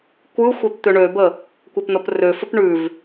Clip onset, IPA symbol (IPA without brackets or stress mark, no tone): kʷ